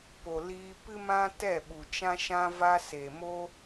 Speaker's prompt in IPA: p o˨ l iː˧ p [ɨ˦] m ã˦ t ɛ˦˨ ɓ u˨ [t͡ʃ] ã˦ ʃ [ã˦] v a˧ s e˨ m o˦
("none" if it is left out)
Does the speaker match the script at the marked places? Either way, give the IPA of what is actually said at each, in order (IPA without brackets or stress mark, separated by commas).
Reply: ɨ˦, t͡ʃ, ã˦